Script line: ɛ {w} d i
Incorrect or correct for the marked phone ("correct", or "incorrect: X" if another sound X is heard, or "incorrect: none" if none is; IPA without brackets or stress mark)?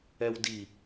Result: correct